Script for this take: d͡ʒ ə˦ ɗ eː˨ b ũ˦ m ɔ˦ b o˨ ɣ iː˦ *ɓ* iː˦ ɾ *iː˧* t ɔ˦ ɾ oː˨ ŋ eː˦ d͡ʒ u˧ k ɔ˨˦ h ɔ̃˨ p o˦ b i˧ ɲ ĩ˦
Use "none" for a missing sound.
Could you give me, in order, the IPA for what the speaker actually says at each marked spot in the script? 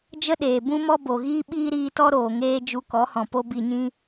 ɓ, iː˧

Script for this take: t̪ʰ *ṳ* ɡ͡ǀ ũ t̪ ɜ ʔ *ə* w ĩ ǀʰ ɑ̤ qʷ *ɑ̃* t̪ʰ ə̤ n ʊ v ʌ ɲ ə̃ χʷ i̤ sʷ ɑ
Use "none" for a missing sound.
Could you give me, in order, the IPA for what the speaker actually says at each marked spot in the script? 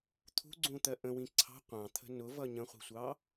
ṳ, ə̃, ɑ̃

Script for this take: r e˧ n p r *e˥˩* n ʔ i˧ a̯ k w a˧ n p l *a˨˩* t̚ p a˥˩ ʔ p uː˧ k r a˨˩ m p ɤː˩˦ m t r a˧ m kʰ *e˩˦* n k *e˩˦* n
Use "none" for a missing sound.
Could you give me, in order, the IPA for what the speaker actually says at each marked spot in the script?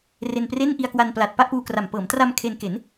e˥˩, a˨˩, e˧, e˩˦

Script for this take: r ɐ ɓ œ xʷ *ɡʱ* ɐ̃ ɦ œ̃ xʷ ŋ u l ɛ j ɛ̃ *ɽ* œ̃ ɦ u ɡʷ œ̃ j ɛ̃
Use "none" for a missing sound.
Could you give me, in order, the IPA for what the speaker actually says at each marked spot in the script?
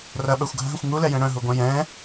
ɡʱ, ɽ

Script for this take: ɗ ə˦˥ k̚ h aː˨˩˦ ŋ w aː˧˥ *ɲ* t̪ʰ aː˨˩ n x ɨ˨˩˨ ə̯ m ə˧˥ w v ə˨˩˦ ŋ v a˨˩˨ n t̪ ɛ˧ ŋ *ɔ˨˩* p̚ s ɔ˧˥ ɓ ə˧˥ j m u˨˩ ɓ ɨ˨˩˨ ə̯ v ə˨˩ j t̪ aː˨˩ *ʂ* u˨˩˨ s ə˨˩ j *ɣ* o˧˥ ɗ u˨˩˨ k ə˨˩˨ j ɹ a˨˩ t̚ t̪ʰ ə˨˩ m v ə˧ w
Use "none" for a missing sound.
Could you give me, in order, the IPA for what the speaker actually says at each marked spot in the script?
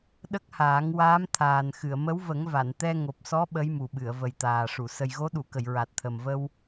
m, o˨˩, ʂ, ɣ

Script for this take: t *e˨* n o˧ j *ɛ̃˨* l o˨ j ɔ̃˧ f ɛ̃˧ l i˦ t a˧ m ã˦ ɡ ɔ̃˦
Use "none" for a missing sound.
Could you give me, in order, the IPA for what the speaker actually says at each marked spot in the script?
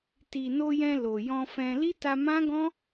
i˨, ɛ̃˧

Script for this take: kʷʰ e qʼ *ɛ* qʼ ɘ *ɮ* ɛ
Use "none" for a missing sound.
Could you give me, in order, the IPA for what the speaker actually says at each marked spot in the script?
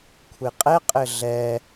ɛ, ɮ

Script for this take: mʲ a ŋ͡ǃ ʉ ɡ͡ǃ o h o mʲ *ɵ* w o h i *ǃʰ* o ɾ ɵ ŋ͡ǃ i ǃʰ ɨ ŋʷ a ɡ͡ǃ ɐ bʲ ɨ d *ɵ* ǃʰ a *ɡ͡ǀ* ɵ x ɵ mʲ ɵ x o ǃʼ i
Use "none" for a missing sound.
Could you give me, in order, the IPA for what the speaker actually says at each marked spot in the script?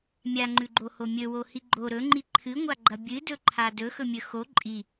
ɵ, ɡ͡ǃ, ɵ, d

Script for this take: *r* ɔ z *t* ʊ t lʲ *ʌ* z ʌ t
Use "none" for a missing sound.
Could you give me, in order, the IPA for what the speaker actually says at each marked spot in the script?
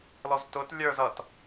l, t, ə˞

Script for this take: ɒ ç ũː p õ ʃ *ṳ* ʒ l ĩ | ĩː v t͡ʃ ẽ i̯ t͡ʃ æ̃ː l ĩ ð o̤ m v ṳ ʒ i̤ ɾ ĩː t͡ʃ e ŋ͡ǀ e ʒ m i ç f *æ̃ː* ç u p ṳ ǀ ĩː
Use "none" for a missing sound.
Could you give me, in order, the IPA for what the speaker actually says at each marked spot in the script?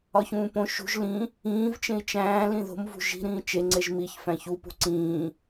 ṳ, æ̃

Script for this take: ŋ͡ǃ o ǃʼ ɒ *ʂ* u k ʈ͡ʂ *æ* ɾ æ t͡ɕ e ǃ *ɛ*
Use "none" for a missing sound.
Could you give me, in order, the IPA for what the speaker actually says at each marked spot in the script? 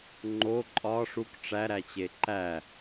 ʂ, æ, æ

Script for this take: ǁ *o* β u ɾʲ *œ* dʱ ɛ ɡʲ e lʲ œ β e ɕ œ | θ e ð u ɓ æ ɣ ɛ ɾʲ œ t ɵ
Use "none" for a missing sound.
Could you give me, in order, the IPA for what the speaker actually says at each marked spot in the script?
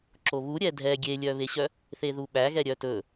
o, ɛ

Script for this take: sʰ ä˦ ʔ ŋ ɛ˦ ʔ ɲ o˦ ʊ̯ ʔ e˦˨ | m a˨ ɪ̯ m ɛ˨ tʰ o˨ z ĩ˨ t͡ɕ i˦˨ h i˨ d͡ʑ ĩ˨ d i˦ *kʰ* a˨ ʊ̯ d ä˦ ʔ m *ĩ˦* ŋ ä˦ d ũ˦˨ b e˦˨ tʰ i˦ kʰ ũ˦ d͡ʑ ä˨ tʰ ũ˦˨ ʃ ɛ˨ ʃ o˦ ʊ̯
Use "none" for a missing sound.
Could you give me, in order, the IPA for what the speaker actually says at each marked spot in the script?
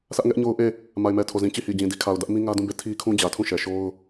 kʰ, ĩ˦

